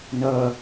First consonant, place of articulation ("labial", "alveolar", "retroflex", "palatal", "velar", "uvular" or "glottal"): alveolar